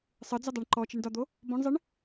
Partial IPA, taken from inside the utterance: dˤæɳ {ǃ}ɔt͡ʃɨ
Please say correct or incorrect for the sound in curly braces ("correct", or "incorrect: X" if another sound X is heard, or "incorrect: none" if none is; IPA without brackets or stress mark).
correct